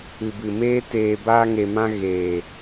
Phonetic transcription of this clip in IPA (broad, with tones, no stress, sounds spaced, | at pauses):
ɨ˨ b ɨ˨ m eː˦ t eː˧ b aː˧ ŋ e˨ m ã˧ ɣ eː˨